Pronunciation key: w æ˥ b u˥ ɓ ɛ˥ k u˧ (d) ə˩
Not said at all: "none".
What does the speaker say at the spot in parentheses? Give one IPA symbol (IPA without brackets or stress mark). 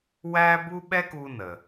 n